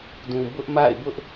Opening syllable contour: low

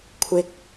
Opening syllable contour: high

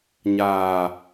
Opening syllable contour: low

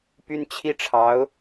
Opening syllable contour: high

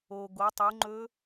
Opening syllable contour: low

